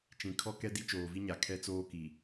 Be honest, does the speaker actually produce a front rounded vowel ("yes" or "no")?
no